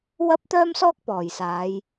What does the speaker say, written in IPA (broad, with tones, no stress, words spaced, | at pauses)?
wɐ˥p̚t̪œː˥msɔː˥k̚ pɔː˨˩jsaː˨˧j